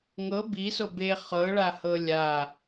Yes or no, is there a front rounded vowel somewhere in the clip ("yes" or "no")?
no